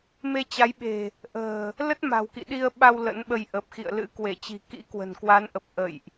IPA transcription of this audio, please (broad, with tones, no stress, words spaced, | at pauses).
me˧t͡ɕa˨˦jɓe̤˨˩ | ʔə̤ː˨˩ | lə˦˥t̚ma̤˨˩wkḭ˧˨ ɗi˧ə̯ɓa˧w lə̰˧˥nɓə˧j ʔə˨˩p̚xḭ˧˨ə̯lɨ̰˧˥ kwe˧˩t͡ɕi̤˨˩ kḭ˧˥ kwə̤˨˩nkwa˨˦nʔə˨˩p̚ ʔə̰˧˨jʔ